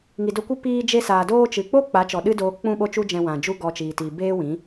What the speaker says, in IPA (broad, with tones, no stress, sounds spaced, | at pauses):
ŋ i˨ d o˧ kʷ ɨ˦ p iː˧ d͡ʒ e˧ s aː˨ d oː˧ t͡ʃ ɨ˨ k͡p o˦ k͡p a˨˦ t͡ʃ ɔ˨ ɗ ɨ˦ d oː˧ k͡p ũ˦ ɓ o˦ t͡ʃ u˦ d͡ʒ ɛ̃˧ w ã˨ d͡ʒ u˦ ɡ ɔ˧ t͡ʃ iː˨ t iː˨ b eː˦ w ĩ˨˦